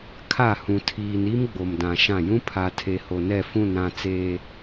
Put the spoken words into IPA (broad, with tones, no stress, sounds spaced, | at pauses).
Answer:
kʰ a˦˨ h ũ˨ tʰ iː˨ n i˦ m ɡ͡b o˨ m d ã˨ ʃ ã˦˨ j ũ˦ pʰ a˨ tʰ e˨ h o˨ n ɛ˦˨ f ũ˦˨ n ɾ ã˦˨ t͡s eː˨